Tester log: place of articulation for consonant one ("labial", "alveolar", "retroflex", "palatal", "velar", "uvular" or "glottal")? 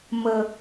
labial